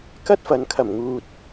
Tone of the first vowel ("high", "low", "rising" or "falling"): high